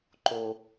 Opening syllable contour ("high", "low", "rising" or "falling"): high